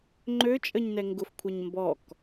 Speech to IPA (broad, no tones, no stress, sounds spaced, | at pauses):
ŋ͡ǃ ø t͡ʃʼ ə ɲ n ɛ ŋ ɡ ʊ f kʷʰ a ɲ m b ɔ k